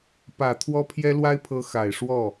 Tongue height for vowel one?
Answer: low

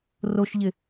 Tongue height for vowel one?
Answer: mid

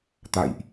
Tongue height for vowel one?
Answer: low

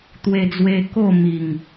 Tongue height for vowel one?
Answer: mid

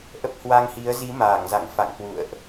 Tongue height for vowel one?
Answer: mid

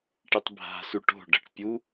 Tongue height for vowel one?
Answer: high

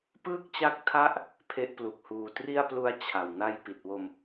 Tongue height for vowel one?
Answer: high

